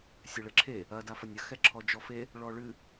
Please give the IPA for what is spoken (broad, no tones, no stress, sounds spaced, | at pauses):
sʲ ɘ ɭ ɘ ǁʰ e | ɐ d a f ɐ nʲ ɐ x ɛ ǁʰ ɔ d͡ʒ ɔ f e | ɭ ɔ ɭ ɨ